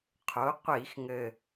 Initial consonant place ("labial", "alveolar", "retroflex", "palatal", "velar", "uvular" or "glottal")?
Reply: uvular